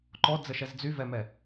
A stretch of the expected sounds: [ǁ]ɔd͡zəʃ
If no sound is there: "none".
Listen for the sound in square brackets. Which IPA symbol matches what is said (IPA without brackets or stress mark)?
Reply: ǃ